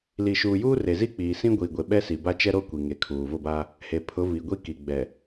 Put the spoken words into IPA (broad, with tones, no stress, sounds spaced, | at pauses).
l i˨ ʃ uː˨ j uː˦ r e˨ z i˦ k͡p iː˨ s ĩ˦ ɡʷ iː˨ ɡʷ e˨ ɓ ɛ˦ s i˨ b a˦ t͡ʃ ɛ˦ ɾ o˦ kʷ i˨ ŋ e˨ kʰ uː˨ v ʊ˦˨ b a˦ | h e˨ pʰ ʊ˨˦ v i˨ ɡʷ i˦ k i˨ ɡ͡b ɛ˨